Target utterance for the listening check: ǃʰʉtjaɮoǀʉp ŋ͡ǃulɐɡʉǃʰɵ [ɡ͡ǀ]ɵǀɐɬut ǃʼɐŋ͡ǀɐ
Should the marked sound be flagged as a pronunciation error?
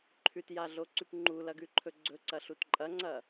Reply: no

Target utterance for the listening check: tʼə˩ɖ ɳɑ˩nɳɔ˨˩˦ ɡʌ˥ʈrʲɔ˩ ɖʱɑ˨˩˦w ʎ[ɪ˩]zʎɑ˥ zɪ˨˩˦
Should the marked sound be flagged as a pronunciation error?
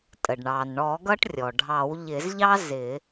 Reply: yes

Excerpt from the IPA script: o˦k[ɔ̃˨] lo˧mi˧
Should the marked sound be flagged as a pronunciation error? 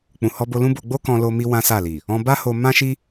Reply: yes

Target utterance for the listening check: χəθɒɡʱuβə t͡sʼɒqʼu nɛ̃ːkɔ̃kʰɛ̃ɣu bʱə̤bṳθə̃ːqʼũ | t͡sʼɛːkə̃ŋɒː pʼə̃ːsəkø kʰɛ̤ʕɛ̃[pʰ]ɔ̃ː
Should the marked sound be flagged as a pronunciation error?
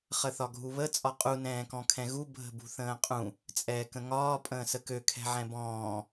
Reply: yes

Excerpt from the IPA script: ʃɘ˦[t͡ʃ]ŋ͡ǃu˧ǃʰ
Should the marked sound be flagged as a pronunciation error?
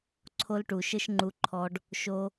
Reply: yes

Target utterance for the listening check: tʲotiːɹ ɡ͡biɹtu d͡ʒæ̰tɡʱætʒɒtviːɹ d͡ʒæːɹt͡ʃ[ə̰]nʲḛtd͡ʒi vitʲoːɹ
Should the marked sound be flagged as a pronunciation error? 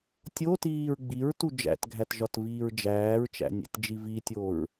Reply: yes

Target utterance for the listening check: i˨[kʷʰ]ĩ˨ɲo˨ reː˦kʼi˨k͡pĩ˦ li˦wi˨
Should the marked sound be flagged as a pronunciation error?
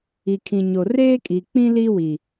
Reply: yes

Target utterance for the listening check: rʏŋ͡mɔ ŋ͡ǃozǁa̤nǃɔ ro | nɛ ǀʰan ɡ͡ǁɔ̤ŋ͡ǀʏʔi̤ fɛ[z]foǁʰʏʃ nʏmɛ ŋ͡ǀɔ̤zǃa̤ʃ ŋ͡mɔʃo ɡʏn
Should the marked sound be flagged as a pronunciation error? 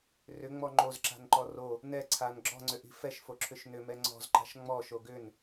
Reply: yes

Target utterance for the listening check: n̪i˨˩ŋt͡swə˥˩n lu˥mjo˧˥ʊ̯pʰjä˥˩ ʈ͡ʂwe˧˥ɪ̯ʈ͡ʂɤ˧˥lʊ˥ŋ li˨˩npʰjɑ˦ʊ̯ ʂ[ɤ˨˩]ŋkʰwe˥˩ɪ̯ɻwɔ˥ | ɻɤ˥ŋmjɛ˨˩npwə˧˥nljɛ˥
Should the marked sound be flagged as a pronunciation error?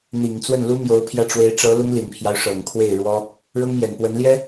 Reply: no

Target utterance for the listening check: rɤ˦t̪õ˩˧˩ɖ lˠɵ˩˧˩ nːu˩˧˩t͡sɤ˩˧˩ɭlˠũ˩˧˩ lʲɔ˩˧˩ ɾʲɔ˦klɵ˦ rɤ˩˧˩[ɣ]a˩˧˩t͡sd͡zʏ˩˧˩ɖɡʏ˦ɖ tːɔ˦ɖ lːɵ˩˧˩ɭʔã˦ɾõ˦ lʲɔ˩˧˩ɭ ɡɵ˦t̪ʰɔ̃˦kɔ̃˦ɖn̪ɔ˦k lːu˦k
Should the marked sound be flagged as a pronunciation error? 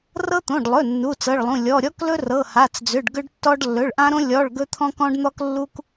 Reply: yes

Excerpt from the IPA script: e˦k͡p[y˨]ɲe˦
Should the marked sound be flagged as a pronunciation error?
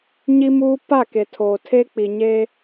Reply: yes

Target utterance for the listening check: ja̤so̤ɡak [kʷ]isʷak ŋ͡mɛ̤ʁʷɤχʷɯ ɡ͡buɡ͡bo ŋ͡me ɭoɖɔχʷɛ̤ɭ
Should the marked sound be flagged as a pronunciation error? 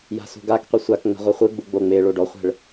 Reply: yes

